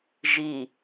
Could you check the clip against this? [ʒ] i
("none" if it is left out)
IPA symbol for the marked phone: ʒ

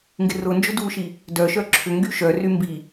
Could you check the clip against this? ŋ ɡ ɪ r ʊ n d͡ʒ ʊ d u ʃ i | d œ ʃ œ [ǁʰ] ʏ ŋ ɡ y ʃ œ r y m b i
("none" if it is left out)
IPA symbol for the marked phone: ǁʰ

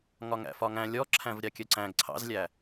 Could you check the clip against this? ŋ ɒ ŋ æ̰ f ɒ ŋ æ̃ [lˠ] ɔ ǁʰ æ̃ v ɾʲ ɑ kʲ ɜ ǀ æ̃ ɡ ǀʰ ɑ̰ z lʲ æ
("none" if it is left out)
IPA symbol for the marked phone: lʲ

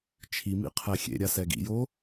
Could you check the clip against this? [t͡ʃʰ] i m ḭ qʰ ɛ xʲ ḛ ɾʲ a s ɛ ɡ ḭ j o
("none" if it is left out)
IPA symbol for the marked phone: t͡ʃʰ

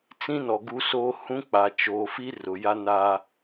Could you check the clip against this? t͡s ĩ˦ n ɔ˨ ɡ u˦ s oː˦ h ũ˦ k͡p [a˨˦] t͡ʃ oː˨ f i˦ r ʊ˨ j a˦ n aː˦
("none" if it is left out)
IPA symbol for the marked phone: a˨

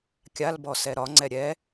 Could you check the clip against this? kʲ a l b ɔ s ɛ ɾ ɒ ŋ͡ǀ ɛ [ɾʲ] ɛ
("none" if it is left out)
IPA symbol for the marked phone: ɾʲ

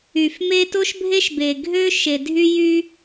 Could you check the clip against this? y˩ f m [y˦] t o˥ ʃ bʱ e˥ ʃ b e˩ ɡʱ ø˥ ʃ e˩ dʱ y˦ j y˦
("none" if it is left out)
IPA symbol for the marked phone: e˦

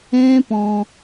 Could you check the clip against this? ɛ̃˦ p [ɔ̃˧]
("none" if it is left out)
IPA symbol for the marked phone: ɔ̃˧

